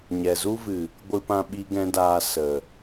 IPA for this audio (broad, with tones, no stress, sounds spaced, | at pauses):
ɲ ɛ˨ z u˦ v ɨ˨ | ɡʷ ɨ˧ p ã˧ ɓ i˦ ɡ ɛ̃˦ d aː˧ s ə˨